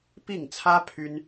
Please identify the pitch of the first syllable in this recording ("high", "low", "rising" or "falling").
falling